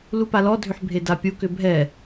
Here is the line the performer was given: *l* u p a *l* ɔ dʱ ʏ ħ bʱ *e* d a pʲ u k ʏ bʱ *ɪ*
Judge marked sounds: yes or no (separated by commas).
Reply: yes, yes, yes, no